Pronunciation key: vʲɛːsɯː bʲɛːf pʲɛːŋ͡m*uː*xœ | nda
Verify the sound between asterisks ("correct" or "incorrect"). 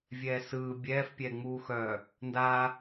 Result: correct